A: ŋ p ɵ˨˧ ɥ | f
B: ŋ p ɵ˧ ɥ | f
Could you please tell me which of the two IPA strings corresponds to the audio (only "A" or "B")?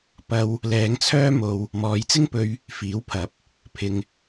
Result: B